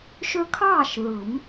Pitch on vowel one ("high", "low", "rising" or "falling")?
high